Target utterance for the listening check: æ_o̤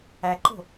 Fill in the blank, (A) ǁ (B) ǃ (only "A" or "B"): B